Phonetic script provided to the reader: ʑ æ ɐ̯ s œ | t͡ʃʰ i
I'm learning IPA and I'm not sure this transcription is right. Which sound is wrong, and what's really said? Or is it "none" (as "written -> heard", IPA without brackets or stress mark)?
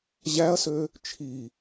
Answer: œ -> ø